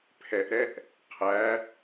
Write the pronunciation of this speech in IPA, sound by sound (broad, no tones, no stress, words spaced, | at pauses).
pʰɛʔɾɛʔ | qʰæ